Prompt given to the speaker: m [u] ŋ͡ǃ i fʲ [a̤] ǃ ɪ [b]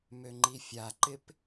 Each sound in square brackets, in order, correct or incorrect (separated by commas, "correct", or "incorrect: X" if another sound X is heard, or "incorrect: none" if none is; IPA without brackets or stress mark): incorrect: ø, incorrect: a, incorrect: p